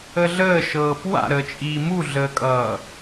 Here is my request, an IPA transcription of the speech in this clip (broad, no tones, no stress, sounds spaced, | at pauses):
ə ɮ əː ʃ ɤː p w a̰ ɾ əː t͡ʃʼ iː m u ɮ əː kʼ ʌː